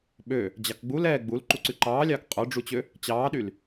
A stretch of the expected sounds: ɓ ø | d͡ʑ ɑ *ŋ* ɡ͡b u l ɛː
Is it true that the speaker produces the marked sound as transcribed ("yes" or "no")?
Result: no